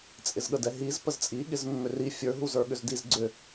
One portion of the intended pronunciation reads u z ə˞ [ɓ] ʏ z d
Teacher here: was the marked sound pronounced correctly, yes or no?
no